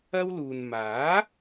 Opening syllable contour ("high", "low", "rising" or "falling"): high